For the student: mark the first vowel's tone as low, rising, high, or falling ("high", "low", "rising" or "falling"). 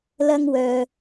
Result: high